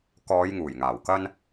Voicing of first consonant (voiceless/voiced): voiceless